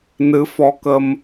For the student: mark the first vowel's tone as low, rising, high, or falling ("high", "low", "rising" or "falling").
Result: rising